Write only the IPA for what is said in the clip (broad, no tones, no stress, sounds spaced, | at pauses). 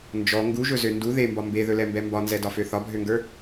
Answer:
n d͡ʒ ɔ ŋ ɡ u ʒ ɵ z ø n d u ð e m b ɒ m b e ð ɵ l ɛ m b ɛ m b ɒ n z ɛ d ɒ f ø θ ɒ bʱ ø ŋ ɡ ə˞